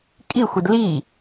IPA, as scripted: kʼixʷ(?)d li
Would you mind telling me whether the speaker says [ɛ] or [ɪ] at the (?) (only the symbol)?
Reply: ɪ